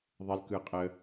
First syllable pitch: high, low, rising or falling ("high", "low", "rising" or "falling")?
high